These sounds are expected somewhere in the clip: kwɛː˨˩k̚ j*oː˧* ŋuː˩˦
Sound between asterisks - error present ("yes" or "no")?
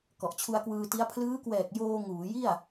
no